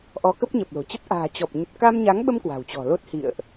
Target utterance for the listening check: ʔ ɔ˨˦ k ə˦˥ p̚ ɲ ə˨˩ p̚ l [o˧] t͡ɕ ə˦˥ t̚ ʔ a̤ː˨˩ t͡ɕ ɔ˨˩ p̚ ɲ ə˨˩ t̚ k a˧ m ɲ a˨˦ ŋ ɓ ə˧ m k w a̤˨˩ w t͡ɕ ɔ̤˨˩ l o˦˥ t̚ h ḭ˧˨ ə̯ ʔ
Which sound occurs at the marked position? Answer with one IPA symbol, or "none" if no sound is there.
o̤˨˩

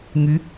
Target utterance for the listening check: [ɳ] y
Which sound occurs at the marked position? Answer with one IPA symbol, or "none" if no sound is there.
ŋ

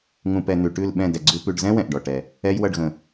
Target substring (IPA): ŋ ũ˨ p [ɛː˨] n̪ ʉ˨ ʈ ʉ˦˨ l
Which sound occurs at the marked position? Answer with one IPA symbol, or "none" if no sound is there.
ɛ˨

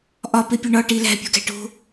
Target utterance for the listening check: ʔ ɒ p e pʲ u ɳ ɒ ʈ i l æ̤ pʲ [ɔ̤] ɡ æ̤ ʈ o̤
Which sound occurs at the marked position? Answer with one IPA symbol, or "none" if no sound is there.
o̤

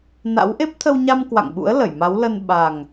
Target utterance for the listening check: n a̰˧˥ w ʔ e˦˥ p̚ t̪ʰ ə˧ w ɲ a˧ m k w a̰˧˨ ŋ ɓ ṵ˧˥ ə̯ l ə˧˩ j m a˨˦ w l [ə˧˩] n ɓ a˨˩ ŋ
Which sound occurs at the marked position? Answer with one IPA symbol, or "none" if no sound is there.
ə˧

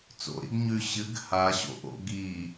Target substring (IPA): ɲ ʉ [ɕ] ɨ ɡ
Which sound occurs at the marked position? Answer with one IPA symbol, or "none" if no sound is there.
ɕ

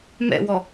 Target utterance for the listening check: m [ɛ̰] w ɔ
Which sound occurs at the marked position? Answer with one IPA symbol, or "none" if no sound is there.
ɛ̰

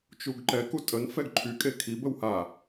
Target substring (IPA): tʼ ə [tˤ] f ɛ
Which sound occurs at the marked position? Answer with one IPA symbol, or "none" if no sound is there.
n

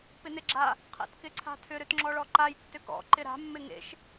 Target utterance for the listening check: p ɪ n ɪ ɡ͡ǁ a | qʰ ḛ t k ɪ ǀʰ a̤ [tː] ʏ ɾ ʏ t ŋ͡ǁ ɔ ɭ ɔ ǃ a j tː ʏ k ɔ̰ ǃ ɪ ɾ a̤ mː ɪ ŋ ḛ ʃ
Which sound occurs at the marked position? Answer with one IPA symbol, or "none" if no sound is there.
tʰ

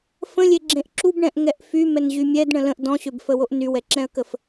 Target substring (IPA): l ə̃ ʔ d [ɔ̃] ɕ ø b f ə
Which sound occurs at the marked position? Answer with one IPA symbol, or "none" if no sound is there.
ɔ̃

